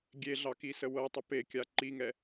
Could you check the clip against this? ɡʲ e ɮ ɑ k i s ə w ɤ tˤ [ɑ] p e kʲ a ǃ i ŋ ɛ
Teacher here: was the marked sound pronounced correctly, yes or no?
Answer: no